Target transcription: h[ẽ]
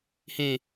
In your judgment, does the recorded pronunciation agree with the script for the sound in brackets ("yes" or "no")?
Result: yes